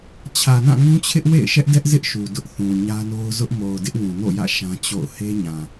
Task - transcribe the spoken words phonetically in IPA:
t͡ɕʰ ä˨ n ã˦˨ ŋ ũ˦ t͡ɕʰ ɪ˦ ʔ w ḛ˦˨ ɪ̯ ʃ ɛ˦ ʔ d ɛ˦ ʔ z ɪ˦ ʔ ʃ u˨ d ʊ˦ ʔ θ ũ˨ ɲ ä˦ n o˦ ʊ̯ z ʊ˦ ʔ m o˨ ʊ̯ d ɪ˦ ʔ w ũ˨ n o̰˦˨ j ä̰˦˨ ʃ ã˦ t͡ɕ o̰˦˨ ʊ̯ h e˦ ɲ ã˨

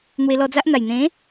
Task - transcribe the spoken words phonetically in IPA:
n̪ w e˧ l ɔ˧ d͡z a˦ ʔ n̪ a˨˩ j n̪ ẽ˨˦

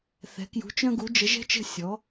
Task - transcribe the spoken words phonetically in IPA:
θ ɛ̤˧˥ k j ṳ˧˥ t͡ʃ œ̃˥ ɡ u˧˥ d͡ʒ ə˧˥ ʒ ɛ̤˥ t͡ʃ ə̤˥ sʲ ɔ˧˥

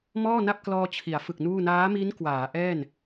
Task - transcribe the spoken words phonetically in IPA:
m ɔː˥˩ n a˥˩ p̚ k l ɔː˧ t͡ɕʰ i˩˦ a̯ f ɯ˨˩ k̚ n uː˥˩ n aː˦˥ m i˦˥ n k w aː˩˦ ʔ ɛː˥˩ n

